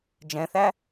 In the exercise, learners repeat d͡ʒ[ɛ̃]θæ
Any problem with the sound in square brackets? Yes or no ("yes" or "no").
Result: no